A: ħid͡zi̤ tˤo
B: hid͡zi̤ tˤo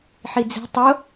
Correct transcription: A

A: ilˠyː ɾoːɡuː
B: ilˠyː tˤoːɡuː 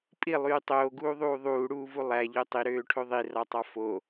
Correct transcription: B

